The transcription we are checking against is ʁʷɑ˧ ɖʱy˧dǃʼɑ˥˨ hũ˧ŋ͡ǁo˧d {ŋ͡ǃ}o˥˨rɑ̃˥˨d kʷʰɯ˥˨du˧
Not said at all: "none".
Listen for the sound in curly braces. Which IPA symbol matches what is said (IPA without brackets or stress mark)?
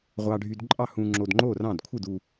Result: ŋ͡ǃ